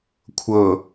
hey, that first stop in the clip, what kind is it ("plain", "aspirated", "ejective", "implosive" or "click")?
aspirated